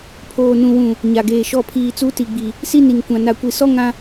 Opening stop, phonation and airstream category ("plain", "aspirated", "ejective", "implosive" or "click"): aspirated